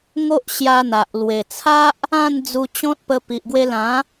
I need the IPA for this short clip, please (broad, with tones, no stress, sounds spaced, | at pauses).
ŋ o˦ ʔ ɕ j a˧ n̪ a˨ ʔ l w e˨˩ t͡sʰ a˦ ʔ | ã˥˧ n d͡z u˧ t͡ɕ ɔ̃˦ t̚ p ə˧ p i˨ ʔ ɡ w e˧ l ã˨˦